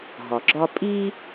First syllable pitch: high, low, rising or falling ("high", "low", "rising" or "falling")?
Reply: low